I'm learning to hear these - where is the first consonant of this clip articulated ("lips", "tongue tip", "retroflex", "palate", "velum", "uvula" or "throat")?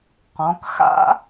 uvula